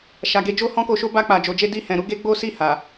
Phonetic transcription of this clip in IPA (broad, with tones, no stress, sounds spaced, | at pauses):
ʃ a˨ ɡ e˨˦ d͡ʒ o˦ h ɔ̃˦ k o˧ ʃ o˦ b a˧ k͡p a˨ d͡ʒ o˨ d͡ʒ e˧ d i˧ h ɛ̃˨ ɾ u˨˦ ɡ e˦ ɡ͡b o˦ s i˦˨ h a˨